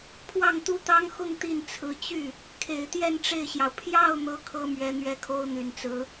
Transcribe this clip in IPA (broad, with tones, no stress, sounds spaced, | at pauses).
pʰ w ɑ˥˩ ŋ t̪ u˥ t̪ ɑ˥ ŋ x ʊ˥˧ ŋ t̪ i˥˩ n t͡sʰ ɹ̩˧˥ t͡ɕ y˥˩ | kʰ e˨˩ ɪ̯ t̪ j ɛ˥˧ n ʈ͡ʂ e˥˩ ɪ̯ ɕ j ɑ˩ ʊ̯ pʰ j ɑ˥˩ ʊ̯ n̪ ɤ˥ kʰ ɤ˥ m ɥ ɛ˧˥ n̪ ɥ ɛ˥˩ kʰ o˥ ʊ̯ n̪ y˨˩ n t͡s ɹ̩˧˥